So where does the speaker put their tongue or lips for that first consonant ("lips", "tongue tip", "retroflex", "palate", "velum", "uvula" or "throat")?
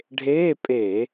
retroflex